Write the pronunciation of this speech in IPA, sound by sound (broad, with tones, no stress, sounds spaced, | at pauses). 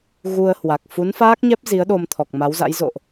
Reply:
ɣ u˧ ə̯ h w a˨˩ k̚ f u˨˦ n f aː˦˥ k̚ ɲ ɛ˦˥ p̚ z i˨˦ ə̯ ɗ o˧ m t̪ʰ ɔ˨˩ k̚ m a˨˦ w z a̰˧˥ j z o̰˧˨ ʔ